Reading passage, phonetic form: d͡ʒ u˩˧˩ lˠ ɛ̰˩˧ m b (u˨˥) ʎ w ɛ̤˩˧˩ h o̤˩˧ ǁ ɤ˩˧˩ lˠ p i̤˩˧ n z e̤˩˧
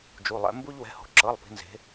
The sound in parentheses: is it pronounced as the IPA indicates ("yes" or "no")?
no